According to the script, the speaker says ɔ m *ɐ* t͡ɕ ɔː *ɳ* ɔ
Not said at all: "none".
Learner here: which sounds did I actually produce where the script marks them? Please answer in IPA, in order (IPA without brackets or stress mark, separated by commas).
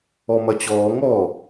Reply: ɐ, ŋ